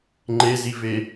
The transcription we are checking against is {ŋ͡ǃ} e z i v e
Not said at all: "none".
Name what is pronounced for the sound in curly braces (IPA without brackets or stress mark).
ŋ͡ǃ